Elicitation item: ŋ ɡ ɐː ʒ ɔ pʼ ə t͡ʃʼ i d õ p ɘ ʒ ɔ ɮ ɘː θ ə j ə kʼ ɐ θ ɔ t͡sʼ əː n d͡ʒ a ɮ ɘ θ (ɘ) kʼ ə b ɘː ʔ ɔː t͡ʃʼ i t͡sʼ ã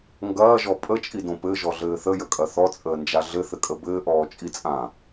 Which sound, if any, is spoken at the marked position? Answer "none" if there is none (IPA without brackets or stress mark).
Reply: ɘ